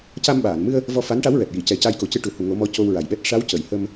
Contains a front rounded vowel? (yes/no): no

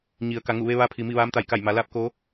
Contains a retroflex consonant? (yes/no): no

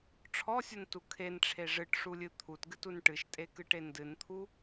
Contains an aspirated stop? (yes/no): yes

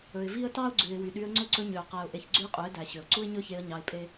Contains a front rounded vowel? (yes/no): yes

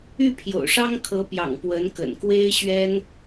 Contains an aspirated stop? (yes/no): yes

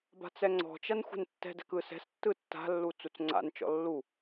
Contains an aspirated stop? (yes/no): no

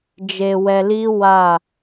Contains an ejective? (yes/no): no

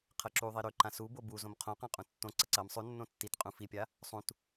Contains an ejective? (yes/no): yes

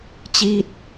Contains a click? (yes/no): no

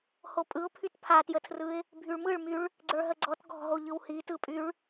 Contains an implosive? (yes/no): no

